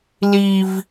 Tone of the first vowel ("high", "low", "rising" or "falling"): high